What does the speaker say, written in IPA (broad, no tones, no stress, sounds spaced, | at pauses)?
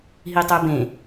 ɦ i tˤ ə˞ b ẽ